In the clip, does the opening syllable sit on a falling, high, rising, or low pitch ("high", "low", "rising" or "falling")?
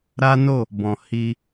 high